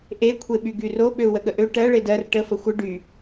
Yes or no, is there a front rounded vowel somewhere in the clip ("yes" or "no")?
yes